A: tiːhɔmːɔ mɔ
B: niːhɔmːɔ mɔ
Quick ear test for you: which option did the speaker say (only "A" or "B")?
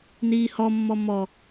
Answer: B